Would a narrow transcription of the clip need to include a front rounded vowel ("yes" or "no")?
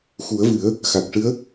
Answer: no